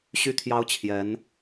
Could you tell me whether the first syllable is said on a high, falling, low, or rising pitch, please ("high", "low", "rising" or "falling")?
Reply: high